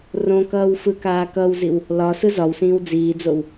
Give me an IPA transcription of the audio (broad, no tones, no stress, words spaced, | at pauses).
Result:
rõkʌːw fɯkaːkʌwziw | lɒ sɯzɒwsĩːw d͡ziːd͡zow